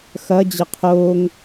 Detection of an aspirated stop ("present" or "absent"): present